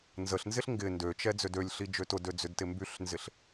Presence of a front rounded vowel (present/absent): present